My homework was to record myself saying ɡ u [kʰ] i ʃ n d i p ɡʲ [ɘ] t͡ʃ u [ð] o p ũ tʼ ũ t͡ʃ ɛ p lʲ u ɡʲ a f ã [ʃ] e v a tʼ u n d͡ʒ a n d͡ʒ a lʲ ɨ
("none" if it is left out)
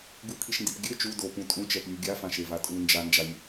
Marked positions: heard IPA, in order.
kʰ, ɘ, d, ʃ

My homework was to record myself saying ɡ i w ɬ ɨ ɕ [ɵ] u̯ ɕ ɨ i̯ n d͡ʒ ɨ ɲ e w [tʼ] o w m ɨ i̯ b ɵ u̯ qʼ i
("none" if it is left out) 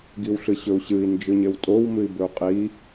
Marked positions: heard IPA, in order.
ɵ, tʼ

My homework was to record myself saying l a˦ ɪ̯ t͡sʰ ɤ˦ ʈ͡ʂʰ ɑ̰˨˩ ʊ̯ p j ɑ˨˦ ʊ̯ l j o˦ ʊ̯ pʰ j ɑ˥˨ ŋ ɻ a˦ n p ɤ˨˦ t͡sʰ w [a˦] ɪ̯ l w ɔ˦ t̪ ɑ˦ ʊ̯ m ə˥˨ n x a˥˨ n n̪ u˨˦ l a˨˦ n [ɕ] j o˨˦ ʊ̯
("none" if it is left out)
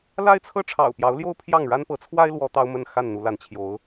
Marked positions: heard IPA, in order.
a˦, t͡ɕʰ

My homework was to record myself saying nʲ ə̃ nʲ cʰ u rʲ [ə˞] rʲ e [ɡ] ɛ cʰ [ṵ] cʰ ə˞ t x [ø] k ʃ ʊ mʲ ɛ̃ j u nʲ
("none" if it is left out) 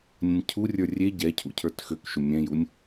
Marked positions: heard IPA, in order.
ə˞, ɟ, ṵ, ø

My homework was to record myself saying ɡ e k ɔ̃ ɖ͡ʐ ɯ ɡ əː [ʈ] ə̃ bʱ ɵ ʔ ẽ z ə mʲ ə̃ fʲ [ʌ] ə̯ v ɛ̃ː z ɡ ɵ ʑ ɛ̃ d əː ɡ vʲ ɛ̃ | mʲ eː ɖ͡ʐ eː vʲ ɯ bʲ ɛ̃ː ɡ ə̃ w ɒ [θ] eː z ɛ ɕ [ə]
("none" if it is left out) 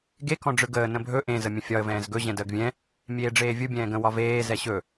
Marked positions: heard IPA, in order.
n, ɒ, v, ɵ

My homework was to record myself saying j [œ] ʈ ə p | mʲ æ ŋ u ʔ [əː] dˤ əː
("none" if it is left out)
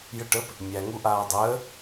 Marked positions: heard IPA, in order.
ə, aː

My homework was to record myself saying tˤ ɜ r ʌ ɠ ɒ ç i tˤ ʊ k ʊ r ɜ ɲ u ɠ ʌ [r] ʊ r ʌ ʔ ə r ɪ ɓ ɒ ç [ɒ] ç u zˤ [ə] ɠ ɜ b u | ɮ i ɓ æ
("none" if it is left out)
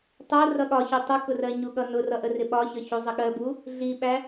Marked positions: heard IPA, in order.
n, ʌ, ə

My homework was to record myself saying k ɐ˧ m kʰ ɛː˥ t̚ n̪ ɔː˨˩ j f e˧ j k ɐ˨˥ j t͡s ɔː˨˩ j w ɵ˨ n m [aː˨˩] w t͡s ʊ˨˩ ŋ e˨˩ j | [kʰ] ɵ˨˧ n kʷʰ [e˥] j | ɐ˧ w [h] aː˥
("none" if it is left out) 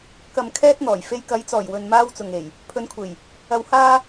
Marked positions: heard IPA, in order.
aː˧, pʰ, e˨˩, h

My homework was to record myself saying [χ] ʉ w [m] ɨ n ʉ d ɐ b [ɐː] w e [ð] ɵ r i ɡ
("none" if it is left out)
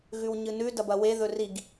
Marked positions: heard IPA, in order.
ɣ, ɲ, ɐ, ð

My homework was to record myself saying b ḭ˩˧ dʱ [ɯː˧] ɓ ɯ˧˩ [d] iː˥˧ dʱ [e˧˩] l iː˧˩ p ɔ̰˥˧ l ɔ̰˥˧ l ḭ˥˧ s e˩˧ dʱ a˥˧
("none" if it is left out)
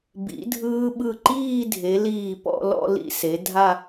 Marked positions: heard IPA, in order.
ɯː˧, ǃ, e˩˧

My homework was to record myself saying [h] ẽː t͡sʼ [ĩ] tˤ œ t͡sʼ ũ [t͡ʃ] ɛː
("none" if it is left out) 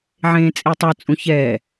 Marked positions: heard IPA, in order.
ʕ, i, ç

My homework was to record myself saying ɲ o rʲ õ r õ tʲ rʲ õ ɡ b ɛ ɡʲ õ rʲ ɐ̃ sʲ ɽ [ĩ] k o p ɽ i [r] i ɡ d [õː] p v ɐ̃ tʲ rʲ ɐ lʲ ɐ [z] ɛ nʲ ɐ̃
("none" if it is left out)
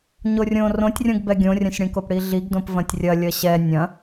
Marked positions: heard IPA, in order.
ĩ, ɮ, õ, ɕ

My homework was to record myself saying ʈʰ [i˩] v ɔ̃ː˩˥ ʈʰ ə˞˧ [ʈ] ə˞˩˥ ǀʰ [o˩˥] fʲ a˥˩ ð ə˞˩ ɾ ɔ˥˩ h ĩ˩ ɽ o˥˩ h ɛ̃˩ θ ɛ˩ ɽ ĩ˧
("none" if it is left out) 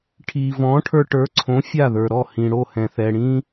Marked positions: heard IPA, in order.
iː˩, ʈ, õ˩˥

